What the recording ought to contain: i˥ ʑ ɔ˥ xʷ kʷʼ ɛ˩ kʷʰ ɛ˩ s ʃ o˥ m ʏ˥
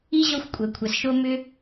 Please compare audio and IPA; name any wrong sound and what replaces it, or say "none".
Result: none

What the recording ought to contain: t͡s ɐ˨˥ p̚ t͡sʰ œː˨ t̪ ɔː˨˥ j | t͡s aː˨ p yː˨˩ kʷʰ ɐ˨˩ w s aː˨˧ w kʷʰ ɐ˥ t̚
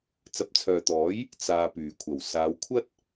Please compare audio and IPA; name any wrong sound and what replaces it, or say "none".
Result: none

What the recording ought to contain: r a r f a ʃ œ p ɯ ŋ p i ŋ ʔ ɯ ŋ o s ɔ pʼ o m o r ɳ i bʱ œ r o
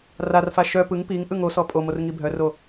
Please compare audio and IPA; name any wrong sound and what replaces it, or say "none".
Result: ɳ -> ŋ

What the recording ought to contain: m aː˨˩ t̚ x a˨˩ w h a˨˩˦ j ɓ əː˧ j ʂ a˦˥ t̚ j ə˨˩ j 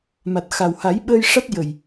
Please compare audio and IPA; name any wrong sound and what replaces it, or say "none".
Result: aː˨˩ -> a˨˩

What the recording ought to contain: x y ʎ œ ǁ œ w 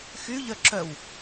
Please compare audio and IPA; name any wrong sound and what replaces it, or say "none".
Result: none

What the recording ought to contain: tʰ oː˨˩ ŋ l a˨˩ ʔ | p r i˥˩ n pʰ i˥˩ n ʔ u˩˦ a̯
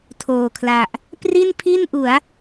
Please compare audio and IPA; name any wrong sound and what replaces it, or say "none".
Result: ŋ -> kʰ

